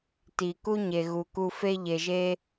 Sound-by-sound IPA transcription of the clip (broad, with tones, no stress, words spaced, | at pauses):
ti˨ ku˦ɲe˨ɣu˨ku˧ fe˧ʎe˨ʒe˧